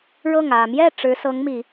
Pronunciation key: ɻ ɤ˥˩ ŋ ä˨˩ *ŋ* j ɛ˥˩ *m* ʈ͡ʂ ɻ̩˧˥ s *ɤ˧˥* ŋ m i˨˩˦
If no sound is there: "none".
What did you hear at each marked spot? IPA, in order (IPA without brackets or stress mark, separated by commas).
m, none, ɤ˧˥